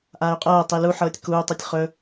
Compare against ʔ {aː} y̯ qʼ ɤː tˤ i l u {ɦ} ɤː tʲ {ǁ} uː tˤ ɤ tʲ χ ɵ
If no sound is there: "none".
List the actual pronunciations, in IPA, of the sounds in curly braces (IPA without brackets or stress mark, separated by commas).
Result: aː, ħ, k